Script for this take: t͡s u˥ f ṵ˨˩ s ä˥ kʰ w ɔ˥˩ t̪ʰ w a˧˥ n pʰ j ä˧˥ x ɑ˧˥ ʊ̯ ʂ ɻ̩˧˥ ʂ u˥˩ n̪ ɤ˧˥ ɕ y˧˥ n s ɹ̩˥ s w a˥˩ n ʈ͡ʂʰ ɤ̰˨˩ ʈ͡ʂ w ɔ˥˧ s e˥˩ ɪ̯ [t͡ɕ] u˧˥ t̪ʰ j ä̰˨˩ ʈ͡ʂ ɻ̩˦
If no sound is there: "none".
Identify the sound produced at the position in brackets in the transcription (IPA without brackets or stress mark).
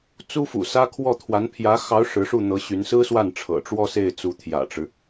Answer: t͡s